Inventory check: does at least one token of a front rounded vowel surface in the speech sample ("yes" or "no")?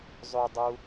yes